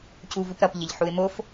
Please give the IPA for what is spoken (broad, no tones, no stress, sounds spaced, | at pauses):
c u v u p ɾ ʌ p ʎ ə ʎ ħ u ɪ̯ m o f